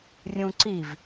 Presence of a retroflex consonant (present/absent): absent